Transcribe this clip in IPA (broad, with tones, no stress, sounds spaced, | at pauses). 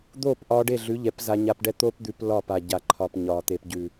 d̪ oː˦˨ p ʔ ɒː˧ ɖ e˦˨ ɮ ʉ˨˦ ʎ ɛ˨˦ p z a˧ ɲ a˧ p ɖ ɛ˦ t̪ oː˦ p d̪ ʉ˧ p l ɒ˦˨ p a˨ ɟ a˨ ǃʰ ɒ˨ p ɲ ɒː˨ t̪ e˨ p ɟ ʉ˨